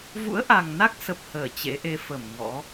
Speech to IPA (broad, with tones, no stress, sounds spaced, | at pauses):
v ṵ˧˥ ə̯ ʔ a˨˩ ŋ n a˦˥ k̚ s ə˨˩ p̚ h əː˧˩ t͡ɕ ḛ˧˥ ʔ e˧ f ə˧˩ m ŋ ɔ̰˧˥